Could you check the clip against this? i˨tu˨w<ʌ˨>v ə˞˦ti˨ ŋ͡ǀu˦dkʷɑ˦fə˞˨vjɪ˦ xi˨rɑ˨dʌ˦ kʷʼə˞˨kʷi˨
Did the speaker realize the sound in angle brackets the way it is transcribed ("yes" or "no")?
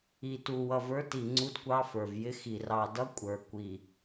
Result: yes